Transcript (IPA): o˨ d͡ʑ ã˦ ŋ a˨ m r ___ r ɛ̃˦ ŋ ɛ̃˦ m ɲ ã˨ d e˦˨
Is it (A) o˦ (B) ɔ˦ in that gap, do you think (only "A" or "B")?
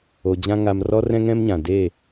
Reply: B